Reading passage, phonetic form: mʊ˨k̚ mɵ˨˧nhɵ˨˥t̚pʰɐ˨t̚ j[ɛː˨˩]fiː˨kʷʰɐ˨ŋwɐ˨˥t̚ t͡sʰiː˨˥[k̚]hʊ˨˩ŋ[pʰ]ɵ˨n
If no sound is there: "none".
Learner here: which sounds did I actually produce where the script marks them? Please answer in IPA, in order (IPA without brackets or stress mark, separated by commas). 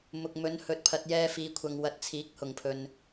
ɛː˧, k̚, pʰ